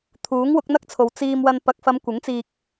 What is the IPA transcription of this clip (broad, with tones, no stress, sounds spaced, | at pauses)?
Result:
t̪ʰ uː˨˥ ŋ w ʊ˨˥ k̚ n̪ ɐ˥ k̚ t͡sʰ o˨ w t͡s iː˧ m w ɐ˧ n p ɐ˨ k̚ f ɐ˨˧ m kʷ ɪ˨˥ ŋ t͡s iː˧ k̚